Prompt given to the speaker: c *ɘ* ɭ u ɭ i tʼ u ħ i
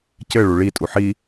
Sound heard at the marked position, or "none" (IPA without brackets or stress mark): ɘ